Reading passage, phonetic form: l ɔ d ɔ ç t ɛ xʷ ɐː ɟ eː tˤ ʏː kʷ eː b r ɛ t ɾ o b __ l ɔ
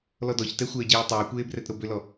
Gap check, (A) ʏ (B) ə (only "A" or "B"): A